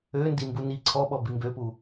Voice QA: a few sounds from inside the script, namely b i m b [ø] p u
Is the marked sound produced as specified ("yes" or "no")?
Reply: yes